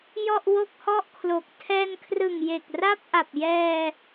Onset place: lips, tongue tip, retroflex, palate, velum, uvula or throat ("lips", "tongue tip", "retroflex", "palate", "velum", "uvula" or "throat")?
palate